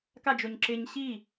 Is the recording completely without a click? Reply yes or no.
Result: no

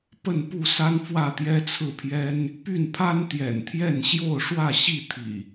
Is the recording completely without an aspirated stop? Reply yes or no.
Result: no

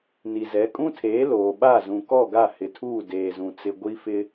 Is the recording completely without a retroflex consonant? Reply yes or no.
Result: yes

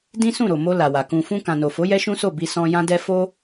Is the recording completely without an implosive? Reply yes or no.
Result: yes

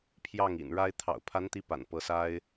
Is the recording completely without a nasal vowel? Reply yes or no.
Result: yes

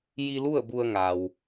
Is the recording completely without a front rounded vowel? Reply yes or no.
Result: yes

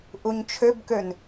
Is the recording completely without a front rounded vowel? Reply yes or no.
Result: no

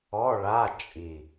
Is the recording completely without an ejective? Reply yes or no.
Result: no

